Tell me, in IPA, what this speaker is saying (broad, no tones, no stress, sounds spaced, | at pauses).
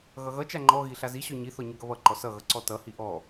ɣ ʌ ɣ ʌ t͡ʃ a ŋ͡ǃ ɔ ɣ i ɬ a z i ɕ ɔ ɲ i θ ɔ ɲ ʌ ɡ ʌ β ʌ ǃ ɔ s ʌ ɣ ʌ ǀ ɔ t ʌ h i ʔ ɔ